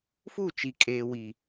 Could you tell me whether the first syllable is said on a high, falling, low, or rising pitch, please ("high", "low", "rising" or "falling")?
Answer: falling